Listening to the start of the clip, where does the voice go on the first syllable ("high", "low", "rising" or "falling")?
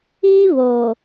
high